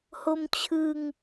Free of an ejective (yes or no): yes